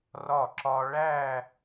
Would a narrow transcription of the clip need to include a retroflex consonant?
yes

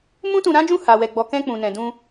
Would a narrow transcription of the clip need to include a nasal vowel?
yes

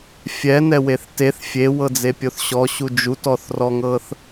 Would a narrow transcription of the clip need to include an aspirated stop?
no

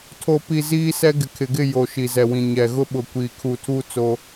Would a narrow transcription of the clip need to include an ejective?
no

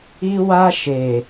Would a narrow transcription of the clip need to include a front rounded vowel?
no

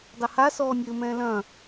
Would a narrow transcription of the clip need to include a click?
no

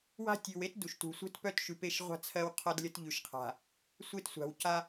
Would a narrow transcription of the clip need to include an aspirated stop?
yes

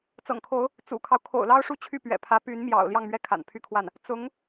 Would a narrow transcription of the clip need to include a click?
no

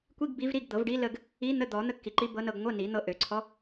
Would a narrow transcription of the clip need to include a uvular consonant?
no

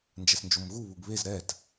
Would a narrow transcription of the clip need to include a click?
no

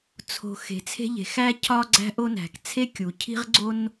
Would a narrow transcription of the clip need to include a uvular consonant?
yes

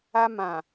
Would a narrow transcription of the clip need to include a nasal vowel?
yes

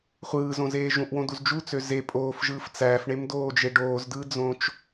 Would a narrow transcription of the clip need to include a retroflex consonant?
yes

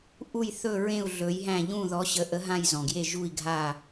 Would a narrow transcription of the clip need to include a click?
no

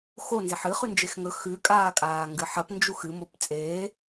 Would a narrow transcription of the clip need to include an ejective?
yes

